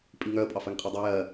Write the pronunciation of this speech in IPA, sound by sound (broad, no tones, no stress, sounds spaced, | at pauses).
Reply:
pʼ i ŋ œ ə̯ pʼ ɑ f ɜ ŋ qʼ i dˤ u j ɜ